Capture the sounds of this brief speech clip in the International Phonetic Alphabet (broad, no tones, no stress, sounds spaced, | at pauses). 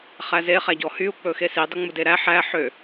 χ æ z e χ æ ɟ ɔ h y u̯ k͡p ɵ x e s i dˤ o ŋ͡m u d e ɾ æ ħ æ ħ ø